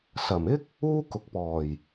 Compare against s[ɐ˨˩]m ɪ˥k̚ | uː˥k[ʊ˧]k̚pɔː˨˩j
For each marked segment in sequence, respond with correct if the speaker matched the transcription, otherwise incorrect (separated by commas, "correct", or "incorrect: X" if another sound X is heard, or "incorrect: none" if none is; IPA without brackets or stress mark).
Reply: correct, incorrect: ʊ˨